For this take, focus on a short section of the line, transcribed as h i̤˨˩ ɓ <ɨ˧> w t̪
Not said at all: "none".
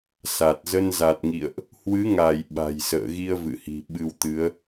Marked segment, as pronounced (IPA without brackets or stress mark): ɨ˧